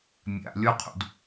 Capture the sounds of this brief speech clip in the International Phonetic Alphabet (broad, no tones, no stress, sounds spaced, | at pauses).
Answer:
mʲ a̰ lʲ ɔ qʰ ṵ d